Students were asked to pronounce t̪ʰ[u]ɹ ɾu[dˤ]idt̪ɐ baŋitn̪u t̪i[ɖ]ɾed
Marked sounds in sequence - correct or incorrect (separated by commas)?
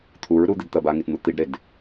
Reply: correct, incorrect, correct